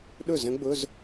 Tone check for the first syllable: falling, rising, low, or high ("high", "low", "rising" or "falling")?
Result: falling